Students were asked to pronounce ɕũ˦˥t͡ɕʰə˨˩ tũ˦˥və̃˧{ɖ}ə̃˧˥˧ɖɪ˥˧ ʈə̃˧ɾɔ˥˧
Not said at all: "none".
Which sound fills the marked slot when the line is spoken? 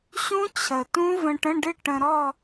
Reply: ʈ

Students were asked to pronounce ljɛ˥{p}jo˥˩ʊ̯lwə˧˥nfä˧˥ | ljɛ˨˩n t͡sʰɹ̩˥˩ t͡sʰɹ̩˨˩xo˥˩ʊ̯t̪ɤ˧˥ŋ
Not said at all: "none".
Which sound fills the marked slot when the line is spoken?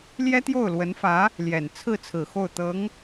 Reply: t̪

